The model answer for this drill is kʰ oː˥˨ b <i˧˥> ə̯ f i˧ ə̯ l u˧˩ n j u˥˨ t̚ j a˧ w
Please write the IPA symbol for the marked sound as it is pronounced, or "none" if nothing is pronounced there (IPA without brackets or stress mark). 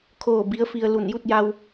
i˧˥